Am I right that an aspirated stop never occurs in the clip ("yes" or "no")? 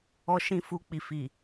yes